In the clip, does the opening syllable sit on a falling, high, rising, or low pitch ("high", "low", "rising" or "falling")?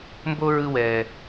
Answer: high